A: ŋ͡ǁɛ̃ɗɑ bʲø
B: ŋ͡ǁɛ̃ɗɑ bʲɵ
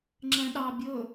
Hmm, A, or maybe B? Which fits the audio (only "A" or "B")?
B